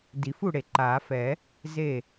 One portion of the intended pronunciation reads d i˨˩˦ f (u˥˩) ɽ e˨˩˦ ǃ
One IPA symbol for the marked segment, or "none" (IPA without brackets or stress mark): u˥˩